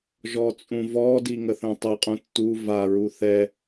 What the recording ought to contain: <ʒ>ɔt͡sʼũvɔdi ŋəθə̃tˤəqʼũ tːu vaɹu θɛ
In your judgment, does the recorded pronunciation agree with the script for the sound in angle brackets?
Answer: yes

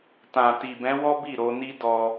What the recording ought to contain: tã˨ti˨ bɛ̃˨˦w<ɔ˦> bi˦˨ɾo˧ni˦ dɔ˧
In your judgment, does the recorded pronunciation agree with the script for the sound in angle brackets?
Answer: yes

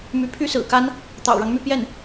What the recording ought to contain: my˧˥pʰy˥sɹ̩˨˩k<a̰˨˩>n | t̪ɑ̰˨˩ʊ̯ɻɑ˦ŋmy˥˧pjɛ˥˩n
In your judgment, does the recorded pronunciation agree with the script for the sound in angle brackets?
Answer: no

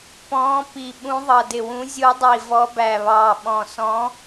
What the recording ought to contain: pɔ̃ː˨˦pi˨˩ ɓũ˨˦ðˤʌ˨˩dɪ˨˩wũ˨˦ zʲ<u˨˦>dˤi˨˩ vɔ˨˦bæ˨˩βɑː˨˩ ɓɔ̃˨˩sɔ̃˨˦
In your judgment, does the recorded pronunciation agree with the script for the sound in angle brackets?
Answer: yes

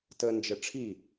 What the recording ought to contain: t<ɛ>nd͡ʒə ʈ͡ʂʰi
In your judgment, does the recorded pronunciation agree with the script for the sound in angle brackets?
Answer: no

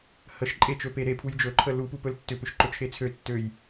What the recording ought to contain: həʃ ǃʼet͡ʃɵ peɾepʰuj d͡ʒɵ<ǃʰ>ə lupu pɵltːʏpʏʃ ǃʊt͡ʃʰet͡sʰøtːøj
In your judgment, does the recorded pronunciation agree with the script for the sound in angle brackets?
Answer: yes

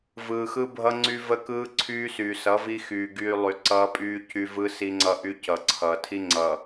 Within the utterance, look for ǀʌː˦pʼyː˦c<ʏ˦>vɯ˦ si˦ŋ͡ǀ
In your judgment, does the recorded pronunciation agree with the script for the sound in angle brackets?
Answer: no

